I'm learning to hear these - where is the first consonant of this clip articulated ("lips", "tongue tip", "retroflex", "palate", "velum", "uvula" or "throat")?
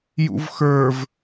palate